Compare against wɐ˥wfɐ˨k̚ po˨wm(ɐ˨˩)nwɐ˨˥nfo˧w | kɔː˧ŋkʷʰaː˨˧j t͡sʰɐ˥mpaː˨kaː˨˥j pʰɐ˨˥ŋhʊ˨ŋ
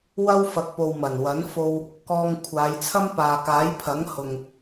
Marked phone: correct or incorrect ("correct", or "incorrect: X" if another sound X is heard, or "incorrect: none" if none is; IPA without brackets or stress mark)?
correct